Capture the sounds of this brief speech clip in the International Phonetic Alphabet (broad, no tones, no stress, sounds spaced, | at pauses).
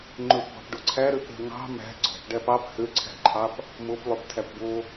ŋ͡ǃ ɵ p b ɑ̤ p ɖ o ǀʰ æ ɾ ø p ɾ ɛ̤ ŋ ɑ̤ m æ̤ ɡ͡ǀ ɔ̤ p ɖ æ p ɑ p h ø ǀʰ æ̤ ǃʰ ɑ p | m o p lˠ ø p tʰ æ p b o